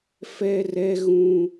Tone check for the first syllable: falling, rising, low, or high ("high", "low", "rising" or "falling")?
high